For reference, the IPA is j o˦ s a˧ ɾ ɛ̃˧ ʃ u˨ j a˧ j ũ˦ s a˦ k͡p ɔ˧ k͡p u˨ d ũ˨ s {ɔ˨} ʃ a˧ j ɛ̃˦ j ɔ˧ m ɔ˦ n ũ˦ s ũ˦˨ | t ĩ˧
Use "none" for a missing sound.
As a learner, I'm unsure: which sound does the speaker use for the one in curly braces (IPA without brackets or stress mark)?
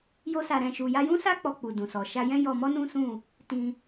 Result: ɔ˨